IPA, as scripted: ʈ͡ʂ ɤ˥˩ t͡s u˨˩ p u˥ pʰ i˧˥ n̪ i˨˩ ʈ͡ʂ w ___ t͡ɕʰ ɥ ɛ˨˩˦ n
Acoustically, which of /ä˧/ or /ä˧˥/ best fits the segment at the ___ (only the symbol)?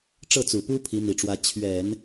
ä˧˥